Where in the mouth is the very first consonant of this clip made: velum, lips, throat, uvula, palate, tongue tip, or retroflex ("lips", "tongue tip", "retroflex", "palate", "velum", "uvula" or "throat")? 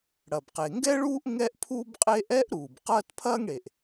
retroflex